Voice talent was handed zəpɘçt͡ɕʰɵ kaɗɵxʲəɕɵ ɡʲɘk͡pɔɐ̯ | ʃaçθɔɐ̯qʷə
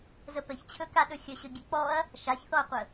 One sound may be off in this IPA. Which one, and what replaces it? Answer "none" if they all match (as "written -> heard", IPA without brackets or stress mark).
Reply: none